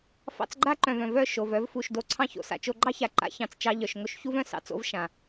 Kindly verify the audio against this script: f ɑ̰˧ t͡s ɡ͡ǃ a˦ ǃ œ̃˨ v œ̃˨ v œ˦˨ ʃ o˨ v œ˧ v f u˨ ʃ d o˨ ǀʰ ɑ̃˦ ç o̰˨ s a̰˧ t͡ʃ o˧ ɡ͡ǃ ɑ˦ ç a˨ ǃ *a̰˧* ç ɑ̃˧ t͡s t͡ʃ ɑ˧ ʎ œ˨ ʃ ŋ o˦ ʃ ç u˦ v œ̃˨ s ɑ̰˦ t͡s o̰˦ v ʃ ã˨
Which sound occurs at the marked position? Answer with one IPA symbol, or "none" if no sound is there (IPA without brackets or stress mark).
a̰˧